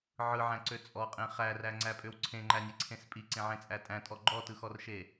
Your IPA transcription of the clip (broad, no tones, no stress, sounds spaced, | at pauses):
ʕ ɯ ʕ æ̃ ǀ ø t͡sʼ ɔ qʼ ẽ χ æ r æ ŋ͡ǀ æ pʼ ø w ǀʰ ẽ ŋ͡ǃ æ nʲ e ǀʰ ẽ s pʼ i ǀ ẽ ʕ ẽ t͡sʼ æ tʼ æ̃ tʼ ɔ ɡ͡ǃ ɔ t ɯ x ɔ r ʃ e